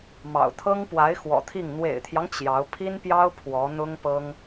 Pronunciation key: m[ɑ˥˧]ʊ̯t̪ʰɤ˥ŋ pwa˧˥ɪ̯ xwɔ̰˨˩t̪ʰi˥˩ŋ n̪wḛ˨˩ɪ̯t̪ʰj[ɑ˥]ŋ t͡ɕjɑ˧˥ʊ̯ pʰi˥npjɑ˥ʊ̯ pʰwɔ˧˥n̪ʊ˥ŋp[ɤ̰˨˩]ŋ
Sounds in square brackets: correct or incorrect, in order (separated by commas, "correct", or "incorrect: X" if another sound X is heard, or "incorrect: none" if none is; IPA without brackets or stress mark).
incorrect: ɑ̰˨˩, incorrect: ɑ˦, incorrect: ɤ˥